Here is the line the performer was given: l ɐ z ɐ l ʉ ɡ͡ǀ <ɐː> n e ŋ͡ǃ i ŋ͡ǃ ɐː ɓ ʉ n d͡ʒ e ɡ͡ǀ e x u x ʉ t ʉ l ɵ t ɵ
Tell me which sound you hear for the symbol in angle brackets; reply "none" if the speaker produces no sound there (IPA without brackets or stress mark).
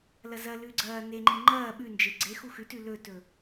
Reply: ɐː